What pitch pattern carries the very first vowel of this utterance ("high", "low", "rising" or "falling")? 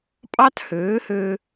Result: high